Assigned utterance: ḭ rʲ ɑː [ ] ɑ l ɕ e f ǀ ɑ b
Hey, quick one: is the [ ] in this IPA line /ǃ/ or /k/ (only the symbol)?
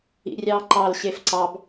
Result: ǃ